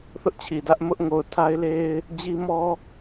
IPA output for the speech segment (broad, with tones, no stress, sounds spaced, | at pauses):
θ ʊ˦ ʔ t͡ɕʰ i˨ d ä˦ ʔ m ʊ˦ ʔ ŋ o˨ ʊ̯ tʰ a˦ ɪ̯ l e˦ ɪ̯ | d͡ʑ i˦ m ɔ˦